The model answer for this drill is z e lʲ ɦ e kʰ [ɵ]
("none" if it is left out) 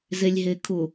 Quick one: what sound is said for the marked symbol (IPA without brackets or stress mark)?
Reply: ʊ